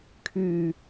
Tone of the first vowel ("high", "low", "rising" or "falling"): low